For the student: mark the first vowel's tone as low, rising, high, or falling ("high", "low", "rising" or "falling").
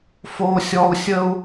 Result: high